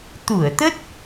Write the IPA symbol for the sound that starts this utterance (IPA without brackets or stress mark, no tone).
t̪